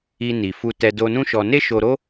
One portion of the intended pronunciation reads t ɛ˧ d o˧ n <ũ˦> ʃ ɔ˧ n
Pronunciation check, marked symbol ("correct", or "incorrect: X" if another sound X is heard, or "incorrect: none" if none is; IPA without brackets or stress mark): correct